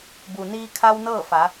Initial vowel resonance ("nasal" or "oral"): oral